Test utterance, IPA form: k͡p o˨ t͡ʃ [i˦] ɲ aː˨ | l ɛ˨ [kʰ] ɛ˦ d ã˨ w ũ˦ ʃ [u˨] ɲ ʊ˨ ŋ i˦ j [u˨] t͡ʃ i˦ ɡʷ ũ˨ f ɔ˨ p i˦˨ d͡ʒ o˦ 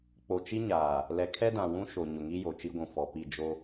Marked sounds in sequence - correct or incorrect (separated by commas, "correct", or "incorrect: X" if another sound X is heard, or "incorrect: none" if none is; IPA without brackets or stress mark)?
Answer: correct, correct, incorrect: o˨, incorrect: o˨